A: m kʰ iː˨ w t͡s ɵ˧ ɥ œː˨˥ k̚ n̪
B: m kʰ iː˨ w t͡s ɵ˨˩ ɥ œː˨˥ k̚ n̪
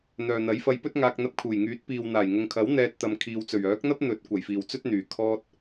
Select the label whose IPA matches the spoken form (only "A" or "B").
B